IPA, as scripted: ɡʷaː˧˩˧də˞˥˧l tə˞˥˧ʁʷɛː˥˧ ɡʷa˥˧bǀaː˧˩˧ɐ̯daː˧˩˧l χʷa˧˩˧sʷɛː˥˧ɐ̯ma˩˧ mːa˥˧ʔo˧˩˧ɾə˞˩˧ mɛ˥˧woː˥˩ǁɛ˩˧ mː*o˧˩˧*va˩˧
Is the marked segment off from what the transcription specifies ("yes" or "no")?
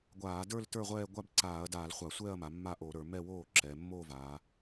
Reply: yes